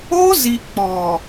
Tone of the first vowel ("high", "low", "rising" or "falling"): high